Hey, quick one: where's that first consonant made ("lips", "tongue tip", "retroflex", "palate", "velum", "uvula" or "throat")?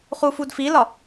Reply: uvula